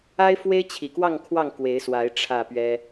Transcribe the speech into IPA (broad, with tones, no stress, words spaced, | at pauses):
a˦ɪ̯fwe˦ɪ̯t͡ɕʰi˨˩kwɑ˥˨ŋ kʰwɑ˥˨ŋkwe˨˦ɪ̯swa˨˦ɪ̯ ʈ͡ʂʰä˥˨pɥɛ˦